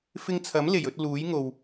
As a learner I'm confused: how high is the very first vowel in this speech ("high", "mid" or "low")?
high